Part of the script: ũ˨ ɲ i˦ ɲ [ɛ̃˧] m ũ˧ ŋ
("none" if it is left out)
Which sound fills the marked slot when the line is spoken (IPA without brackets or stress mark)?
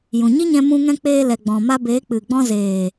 ɛ̃˧